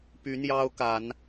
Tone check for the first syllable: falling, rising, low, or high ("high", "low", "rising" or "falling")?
rising